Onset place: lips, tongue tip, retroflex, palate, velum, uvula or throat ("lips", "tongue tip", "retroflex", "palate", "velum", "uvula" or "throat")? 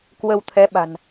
velum